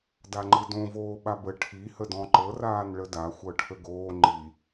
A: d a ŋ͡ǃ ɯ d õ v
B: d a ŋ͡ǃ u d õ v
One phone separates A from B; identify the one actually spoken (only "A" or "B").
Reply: A